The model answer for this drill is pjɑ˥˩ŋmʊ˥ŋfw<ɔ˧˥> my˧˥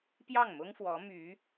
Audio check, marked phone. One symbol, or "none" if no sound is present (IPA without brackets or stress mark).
ɔ˧˥